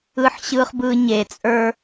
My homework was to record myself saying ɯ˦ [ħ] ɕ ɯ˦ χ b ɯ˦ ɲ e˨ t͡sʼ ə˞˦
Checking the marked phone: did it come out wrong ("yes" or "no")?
no